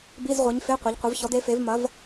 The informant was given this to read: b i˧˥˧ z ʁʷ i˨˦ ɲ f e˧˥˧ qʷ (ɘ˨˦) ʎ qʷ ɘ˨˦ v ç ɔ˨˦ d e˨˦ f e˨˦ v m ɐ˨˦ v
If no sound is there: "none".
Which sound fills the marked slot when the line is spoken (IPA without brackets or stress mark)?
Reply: e˨˦